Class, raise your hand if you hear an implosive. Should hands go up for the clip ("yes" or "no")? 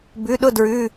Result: yes